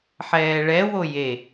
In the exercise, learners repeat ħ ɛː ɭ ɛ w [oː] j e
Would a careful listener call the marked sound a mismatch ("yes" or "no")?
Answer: yes